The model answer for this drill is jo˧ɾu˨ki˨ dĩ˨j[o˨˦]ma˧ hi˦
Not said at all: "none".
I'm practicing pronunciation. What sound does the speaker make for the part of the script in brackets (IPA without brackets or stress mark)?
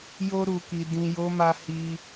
o˨˦